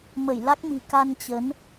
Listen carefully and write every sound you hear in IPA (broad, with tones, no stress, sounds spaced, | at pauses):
m ə˧˩ j l a˦˥ k̚ m i̤˨˩ k a˧ n t͡ɕ ə˨˦ n